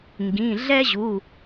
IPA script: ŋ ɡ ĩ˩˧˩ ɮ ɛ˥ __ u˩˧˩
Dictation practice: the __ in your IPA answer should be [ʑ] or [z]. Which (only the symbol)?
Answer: ʑ